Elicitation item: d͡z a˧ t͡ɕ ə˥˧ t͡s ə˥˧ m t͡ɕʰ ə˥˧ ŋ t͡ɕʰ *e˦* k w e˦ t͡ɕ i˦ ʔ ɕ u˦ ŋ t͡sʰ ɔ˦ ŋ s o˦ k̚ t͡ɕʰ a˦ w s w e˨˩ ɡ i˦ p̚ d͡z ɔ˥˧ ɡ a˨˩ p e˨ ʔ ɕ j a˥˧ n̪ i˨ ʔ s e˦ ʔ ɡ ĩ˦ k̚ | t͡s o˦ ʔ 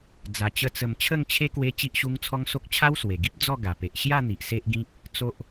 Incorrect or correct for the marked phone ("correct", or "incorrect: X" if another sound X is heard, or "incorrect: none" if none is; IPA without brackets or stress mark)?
correct